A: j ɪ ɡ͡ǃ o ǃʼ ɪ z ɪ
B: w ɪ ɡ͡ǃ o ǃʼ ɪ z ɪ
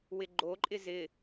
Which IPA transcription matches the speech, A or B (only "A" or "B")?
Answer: B